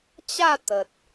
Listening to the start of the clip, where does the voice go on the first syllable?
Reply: falling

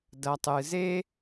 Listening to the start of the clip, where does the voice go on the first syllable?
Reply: low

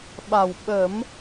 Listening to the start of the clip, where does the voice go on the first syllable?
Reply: low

